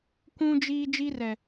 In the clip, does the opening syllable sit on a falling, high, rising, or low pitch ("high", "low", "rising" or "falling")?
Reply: high